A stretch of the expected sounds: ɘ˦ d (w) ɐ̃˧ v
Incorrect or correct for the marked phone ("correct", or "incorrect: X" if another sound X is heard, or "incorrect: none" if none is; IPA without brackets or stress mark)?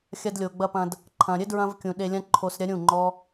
incorrect: ɹ